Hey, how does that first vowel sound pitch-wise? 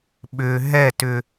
low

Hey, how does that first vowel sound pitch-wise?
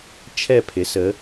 falling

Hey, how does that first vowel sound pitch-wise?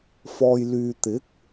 low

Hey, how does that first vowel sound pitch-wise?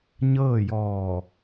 falling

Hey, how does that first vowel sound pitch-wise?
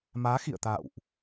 rising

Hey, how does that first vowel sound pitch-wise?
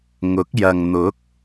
rising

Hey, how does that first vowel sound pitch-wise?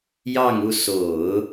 falling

